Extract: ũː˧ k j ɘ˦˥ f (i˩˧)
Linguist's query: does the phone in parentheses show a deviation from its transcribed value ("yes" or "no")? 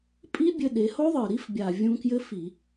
yes